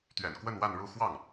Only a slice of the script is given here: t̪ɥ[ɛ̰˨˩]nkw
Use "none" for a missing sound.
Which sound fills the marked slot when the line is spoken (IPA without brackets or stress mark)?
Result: ɛ̰˨˩